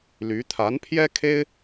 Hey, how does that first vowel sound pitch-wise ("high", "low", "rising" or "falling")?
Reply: rising